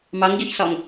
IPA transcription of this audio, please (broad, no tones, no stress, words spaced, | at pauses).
mɑŋɟɔçsɒŋ